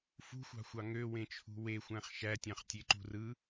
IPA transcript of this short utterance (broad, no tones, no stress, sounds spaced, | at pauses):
f ṳ xʷ ɑ̤ xʷ ɑ ŋ ø w ẽ t͡ʃʰ ṳ w e xʷ æ̃ χ ʃ æ tʲ ɑ̃ χ tʲ e ǃ ṳ r ɯ